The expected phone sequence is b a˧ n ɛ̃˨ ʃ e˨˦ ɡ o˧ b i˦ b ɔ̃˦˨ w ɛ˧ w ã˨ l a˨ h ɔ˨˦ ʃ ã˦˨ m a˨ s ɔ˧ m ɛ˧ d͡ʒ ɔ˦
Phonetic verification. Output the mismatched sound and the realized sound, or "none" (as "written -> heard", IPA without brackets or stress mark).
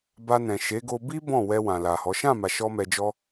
s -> ʃ